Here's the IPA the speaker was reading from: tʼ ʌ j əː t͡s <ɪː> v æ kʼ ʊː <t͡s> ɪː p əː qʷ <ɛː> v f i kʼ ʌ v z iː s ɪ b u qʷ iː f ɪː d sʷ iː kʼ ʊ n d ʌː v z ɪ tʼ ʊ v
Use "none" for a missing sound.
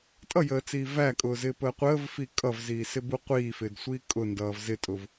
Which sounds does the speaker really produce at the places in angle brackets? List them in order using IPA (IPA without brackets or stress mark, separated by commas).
iː, z, əː